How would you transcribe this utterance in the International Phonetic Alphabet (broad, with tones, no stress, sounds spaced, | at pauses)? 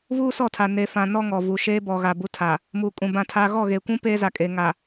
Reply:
v uː˦ s ɔ˦˨ tʰ a˨ n e˨ f ã˨ n ɔ˦ ŋ ɔ˨ v u˨ ʃ eː˦ b ɔ˨ ɣ a˨ b u˦ tʰ a˨ | m uː˨ kʼ ũ˨ b ã˦˨ tʰ a˦ ɣ ɔ˦˨ ɣ e˨ kʷ ũ˦ p eː˦ z a˨ kʼ e˨ ŋ a˨